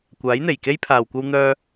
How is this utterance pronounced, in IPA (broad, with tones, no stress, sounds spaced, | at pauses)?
kʷ aː˨˥ j n̪ e˨˩ j k e˥ j pʰ aː˨ w kʷ ɐ˥ w n̪ œː˥